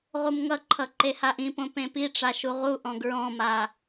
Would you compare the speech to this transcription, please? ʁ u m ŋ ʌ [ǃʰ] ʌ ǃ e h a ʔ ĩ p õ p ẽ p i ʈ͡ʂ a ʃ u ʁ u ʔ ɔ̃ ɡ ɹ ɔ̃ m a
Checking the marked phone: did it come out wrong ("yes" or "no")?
no